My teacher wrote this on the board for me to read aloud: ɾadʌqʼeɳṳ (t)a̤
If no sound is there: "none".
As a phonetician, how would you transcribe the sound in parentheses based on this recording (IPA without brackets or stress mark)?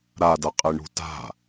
t